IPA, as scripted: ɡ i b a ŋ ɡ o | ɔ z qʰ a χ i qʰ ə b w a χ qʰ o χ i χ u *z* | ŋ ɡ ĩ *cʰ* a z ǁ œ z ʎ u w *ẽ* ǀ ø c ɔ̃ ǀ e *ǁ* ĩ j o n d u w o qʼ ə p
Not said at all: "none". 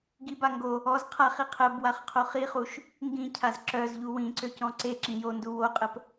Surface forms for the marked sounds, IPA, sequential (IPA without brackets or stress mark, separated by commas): ʃ, cʰ, ĩ, ǁ